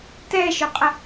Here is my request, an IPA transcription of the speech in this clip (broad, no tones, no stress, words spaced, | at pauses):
tɛʃʏqʼə